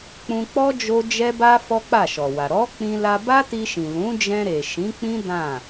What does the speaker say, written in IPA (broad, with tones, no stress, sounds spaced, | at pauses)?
k͡p ũ˧ k͡p ɔ˦ d͡ʒ o˦ d͡ʒ ɛ˦ b a˦ f ɔ˦ k͡p a˦˨ ʃ ɔ˨ w a˨ ɾ ɔ˨˦ k͡p ĩ˧ l a˧ b a˦ t i˧ ʃ ĩ˨ l ũ˨˦ d͡ʒ ɛ̃˧ ɾ e˨ ʃ ĩ˨˦ k͡p ĩ˦ d ã˦˨